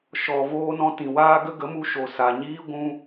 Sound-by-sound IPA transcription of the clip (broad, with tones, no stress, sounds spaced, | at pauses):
ʃ ɔ˨ v oː˧ n ɔ̃˧ t ĩ˨ w aː˦ ɡ ə˦ ɡ ə˨˦ m u˧ ʃ o˨ s a˨ ɲ iː˦ ɡʷ ũ˧